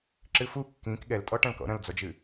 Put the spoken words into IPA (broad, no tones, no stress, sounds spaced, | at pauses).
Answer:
ǁ ɨ f u kː ĩ k ɠ ɛ l tʼ ɔ ʈ ɐ̃ l k ɔ̰ ɾ ɐ̃ l d͡z ɔ d͡ʒ ɨ